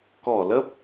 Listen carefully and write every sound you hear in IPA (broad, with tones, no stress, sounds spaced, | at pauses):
k ɔ˧˩ l ə˦˥ p̚